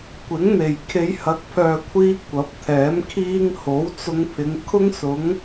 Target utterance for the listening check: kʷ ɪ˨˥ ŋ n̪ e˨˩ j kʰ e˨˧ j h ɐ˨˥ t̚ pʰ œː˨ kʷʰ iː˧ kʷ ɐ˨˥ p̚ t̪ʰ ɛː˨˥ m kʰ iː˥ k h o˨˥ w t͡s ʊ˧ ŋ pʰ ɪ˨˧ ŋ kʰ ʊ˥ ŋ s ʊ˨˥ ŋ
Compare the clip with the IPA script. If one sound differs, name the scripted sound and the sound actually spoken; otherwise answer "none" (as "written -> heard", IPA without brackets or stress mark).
k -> ŋ